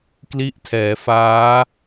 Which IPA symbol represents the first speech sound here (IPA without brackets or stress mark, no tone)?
k